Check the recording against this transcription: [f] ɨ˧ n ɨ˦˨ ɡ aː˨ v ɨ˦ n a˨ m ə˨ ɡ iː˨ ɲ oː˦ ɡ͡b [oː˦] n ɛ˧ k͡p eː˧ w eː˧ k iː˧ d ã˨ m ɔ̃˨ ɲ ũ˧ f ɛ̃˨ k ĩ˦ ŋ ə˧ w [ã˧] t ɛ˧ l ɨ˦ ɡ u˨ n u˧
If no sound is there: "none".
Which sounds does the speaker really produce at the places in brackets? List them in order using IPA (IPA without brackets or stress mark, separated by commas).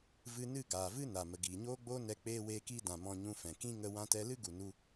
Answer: v, oː˦, ã˧